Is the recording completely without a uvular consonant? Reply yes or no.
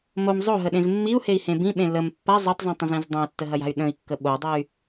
yes